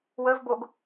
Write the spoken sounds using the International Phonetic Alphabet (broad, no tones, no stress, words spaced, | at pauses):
wəvboɡ